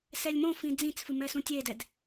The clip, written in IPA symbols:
s ɛ lʲ m õ f ĩ d͡z ĩ t͡s f ɨ m ɛ s ũ tʲ e d ɛ d

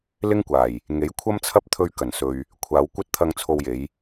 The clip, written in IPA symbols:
l ɪ˥ ŋ kʷ aː˨˩ j | ŋ e˨˥ j kʷʰ ɐ˥ m t͡sʰ ɐ˥ p̚ t̪ʰ ɵ˧ ɥ k ɐ˨˩ n s ɵ˨ ɥ | kʷʰ aː˨˧ w kʷ ɐ˥ t̚ t̪ʰ ɐ˧ ŋ t͡sʰ o˧ w j e˨˧ j

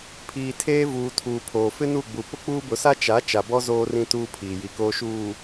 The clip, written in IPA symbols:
pʰ iː˨ tʰ eː˦ v uː˨ tʰ uː˨ pʰ oː˨ f ɪ˦ n u˦˨ ɡ͡b u˨ p ʊ˦ k͡p uː˦ b ʊ˨˦ s a˦ t͡ʃ a˨˦ t͡ʃ a˨ b ɔ˦ z oː˦ r ĩ˦ t uː˦ pʰ iː˨ j i˨ k oː˨ ʃ uː˨

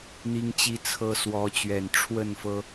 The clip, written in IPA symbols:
n̪ i˦ ŋ t͡ɕ i˦ t͡sʰ ɤ˦ s w ɔ˨˦ t͡ɕ ɥ ɛ˨˩ n ʈ͡ʂʰ w ə˥˨ n f ɤ˦

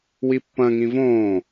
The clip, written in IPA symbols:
w i pː ɐ̃ ŋ ĩ v õː

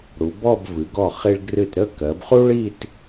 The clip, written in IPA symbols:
ɽ u˩˧ b ɔ˥˧ b v ɨ˩˧ ɡ ɔ˧˩ χ i˧ ɭ ɡ r ɨ˧˩ t ɾ ə˥˧ k ɜ˩˧ b χ u˥ ɭ i˥˧ t

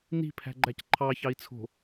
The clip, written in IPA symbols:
n i̤ pʰ æ̤ ɡ͡ǃ æ c ǃʰ ɑ ç ɑ i̯ t͡sʰ o̤

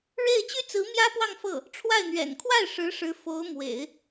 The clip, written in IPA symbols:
ɻ e˥˩ ɪ̯ t͡ɕ y˥ t͡s ɹ̩˧˥ m j ä˥ p w ɑ˥˧ ŋ f ɤ˥˩ | ʈ͡ʂʰ w a˥˩ ɪ̯ n̪ ɥ ɛ̰˨˩ n kʰ w a˥˩ ɪ̯ ʂ ɻ̩˧˥ ʂ ɻ̩˧˥ f o˧˥ ʊ̯ m w ḛ˨˩˦ ɪ̯

